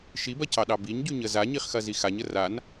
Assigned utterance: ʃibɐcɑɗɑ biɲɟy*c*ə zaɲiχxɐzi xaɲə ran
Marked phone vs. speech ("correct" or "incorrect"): incorrect